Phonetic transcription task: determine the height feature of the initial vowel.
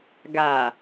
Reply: low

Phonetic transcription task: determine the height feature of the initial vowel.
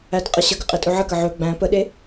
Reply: low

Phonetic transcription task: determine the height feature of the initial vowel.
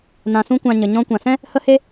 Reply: low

